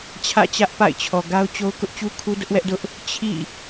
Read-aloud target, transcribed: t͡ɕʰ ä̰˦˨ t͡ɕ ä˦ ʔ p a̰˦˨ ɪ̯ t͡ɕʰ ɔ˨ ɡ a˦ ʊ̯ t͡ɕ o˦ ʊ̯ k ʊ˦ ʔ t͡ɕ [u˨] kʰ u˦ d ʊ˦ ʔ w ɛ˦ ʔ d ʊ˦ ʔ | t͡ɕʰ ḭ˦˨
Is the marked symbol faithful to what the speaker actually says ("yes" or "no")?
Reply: no